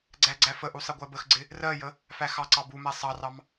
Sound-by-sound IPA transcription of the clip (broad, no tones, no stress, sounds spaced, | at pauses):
ɡ͡ǀ æ ɡ͡ǀ æ f ə ʔ u sˤ ɪ ɡʷ ɜ b ə x ɡ͡ǀ ɪ | r ɜ j ə | f æ x ɑ ǀ ɑ b u m æ sˤ ɑ r ɑ m